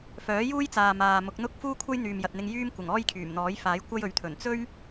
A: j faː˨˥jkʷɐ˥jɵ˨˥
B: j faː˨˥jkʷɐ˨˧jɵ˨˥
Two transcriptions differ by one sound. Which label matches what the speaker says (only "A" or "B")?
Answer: A